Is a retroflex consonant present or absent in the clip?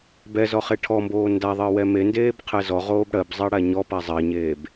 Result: present